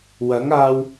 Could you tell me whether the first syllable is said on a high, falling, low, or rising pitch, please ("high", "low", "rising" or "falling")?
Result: rising